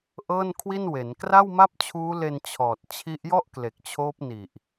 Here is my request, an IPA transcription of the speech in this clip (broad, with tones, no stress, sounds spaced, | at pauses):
ʔ ɤː˥˩ n kʰ w i˥˩ n w e˩˦ n k r a˥˩ w m a˥˩ p̚ t͡ɕʰ uː˦˥ l e˧ n t͡ɕʰ ɔː˨˩ t̚ t͡ɕʰ i˦˥ ʔ j ɔ˥˩ ʔ k l e˨˩ k̚ t͡ɕʰ oː˦˥ p̚ n i˨˩ ʔ